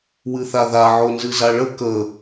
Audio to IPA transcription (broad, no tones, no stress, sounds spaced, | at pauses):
w ɨ θ a ð a ʕ o n z ɨ z a ɭ ə k ə